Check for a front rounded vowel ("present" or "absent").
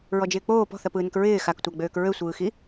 present